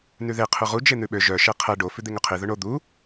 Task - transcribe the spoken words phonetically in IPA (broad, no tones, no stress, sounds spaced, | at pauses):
n ʉ ð e qʰ ʉ ʁ u d͡ʒ e n̪ ʉ ɓ ø ʒ œ ʃ ɛ qʰ ɛ ɖ o f ʉ d̪ e ŋ ɵ qʰ i ð ɵ ɳ o d̪ u